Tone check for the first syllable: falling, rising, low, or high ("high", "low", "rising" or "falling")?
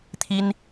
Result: high